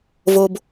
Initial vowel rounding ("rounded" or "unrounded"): rounded